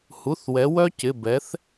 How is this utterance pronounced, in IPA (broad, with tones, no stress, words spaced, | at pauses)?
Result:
hu˩˧˩θwɛ˩˧wœ˦˥cɪ˩˧˩ bɛ˩˧θ